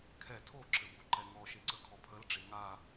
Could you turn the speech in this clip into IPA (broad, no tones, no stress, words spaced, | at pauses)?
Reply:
kʰɛ tʰoǁɘboǃɛ ŋɔʃeǀə kʰɔpʰəlɖ͡ʐe ŋa